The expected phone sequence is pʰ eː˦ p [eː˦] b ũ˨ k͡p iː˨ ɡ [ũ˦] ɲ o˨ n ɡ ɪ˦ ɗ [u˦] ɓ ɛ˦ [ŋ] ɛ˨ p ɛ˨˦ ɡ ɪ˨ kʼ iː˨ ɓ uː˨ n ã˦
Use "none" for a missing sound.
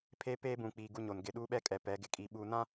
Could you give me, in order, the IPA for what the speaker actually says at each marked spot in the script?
eː˦, u˦, uː˦, kʼ

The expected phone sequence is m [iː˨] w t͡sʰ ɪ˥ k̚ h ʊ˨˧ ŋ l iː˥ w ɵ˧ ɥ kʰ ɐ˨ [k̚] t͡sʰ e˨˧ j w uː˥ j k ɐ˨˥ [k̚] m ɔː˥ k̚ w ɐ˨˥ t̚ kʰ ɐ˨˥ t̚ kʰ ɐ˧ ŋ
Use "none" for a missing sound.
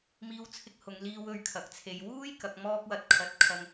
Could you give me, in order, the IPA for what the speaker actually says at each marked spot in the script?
iː˥, k̚, k̚

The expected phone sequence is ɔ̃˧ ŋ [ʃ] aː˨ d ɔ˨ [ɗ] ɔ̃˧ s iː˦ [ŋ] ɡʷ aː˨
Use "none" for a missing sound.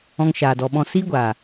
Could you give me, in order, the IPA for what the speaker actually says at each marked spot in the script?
ʃ, ɓ, none

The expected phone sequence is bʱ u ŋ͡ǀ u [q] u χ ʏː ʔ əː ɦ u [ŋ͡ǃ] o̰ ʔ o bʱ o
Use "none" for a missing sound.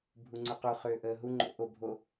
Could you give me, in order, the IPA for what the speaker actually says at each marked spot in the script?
q, ŋ͡ǃ

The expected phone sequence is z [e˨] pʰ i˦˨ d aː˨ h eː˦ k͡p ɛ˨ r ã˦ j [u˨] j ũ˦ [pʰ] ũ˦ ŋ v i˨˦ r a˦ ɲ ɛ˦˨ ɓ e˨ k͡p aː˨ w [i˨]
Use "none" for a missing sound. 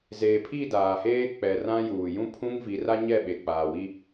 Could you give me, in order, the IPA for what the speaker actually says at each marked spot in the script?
eː˨, uː˨, pʰ, i˦

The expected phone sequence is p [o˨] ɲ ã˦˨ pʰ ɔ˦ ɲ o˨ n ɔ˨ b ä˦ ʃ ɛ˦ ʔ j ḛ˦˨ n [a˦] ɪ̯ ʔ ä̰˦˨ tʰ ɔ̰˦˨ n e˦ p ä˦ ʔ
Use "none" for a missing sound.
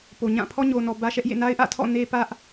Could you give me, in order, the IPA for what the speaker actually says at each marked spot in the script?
o˨, a˦

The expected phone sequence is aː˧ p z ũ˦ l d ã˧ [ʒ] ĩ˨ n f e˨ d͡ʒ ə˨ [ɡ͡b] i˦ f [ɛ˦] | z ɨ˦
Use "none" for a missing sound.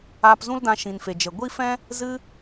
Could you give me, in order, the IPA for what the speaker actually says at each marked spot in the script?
ʃ, ɡʷ, ɛ̃˦

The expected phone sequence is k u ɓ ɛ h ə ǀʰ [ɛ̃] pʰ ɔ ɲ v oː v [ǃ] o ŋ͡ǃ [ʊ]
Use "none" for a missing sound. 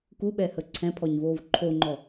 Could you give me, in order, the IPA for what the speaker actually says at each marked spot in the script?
ɛ̃, ǃʰ, ɔ

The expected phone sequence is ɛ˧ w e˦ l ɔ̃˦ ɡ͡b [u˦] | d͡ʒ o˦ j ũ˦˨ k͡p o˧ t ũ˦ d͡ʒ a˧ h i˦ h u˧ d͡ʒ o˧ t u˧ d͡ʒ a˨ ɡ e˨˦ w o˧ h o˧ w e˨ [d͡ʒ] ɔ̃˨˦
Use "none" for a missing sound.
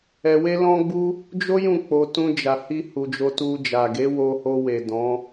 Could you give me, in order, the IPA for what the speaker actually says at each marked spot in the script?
u˦, d

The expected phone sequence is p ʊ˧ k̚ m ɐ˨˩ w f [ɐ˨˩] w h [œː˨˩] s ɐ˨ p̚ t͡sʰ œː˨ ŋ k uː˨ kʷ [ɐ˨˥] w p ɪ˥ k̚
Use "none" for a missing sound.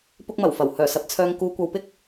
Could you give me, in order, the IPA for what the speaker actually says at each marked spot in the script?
ɐ˨˩, œː˨˩, ɐ˨

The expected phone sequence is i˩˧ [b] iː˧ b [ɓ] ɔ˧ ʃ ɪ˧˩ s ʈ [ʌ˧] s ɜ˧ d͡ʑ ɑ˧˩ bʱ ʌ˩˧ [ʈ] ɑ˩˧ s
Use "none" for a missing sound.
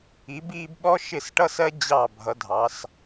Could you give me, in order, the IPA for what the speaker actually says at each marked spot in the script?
b, ɓ, ʌ˧, dʱ

